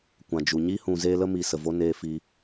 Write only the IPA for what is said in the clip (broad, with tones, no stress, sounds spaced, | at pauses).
kʷ ã˨ d͡ʒ u˨ ɲ i˦ h ũ˨ z eː˧ l ə˦ m i˨ s ə˨ v o˦ n eː˦ f i˦